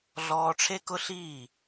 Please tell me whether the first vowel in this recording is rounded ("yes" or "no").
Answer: yes